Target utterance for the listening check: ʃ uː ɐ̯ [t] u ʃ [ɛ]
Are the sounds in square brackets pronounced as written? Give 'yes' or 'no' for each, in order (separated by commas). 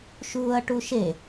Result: no, no